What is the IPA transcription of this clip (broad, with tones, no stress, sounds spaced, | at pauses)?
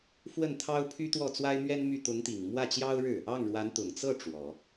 f w ə˥˩ n t̪ʰ ɑ˥ ʊ̯ pʰ y˥ t̪ w ɔ˥˩ t͡s w a˥ ɪ̯ m ɥ ɛ˥ n m y˥˩ t̪ ʊ˧˥ ŋ t̪ i˨˩ ŋ m w ä˥˩ t͡ɕ j ɑ˥ ʊ̯ ɻ ɻ̩˥˩ | ɑ˥˩ ŋ ɻ w a˧˥ n t̪ ʊ˨˩ ŋ t͡s ɤ˥˩ ʈ͡ʂ w ɔ˨˩˦